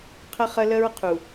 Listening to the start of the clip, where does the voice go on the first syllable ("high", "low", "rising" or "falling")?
high